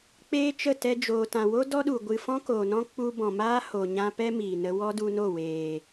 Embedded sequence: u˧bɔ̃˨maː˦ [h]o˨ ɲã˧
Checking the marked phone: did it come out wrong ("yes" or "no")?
no